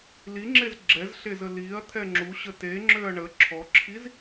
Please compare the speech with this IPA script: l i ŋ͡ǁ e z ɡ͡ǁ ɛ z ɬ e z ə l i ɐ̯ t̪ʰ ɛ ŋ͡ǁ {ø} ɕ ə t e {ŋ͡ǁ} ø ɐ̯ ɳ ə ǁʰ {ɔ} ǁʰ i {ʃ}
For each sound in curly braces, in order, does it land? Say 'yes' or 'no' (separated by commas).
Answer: no, yes, yes, no